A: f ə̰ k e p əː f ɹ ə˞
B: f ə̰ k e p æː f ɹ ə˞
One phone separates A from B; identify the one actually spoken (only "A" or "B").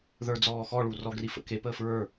A